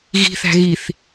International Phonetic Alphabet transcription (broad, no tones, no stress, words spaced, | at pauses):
ɣi̤θæ̤ ɣiθ